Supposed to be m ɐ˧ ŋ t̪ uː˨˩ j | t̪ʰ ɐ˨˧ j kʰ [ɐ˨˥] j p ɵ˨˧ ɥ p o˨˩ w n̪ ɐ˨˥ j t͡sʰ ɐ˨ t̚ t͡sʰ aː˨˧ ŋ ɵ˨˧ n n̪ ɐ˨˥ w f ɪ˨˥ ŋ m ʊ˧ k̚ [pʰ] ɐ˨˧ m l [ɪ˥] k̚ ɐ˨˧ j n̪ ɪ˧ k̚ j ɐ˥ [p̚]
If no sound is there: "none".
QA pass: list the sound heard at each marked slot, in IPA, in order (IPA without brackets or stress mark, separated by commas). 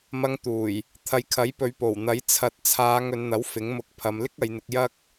ɐ˨˥, pʰ, ɪ˥, k̚